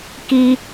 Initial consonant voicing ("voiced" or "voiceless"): voiceless